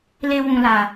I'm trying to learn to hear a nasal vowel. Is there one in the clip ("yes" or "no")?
yes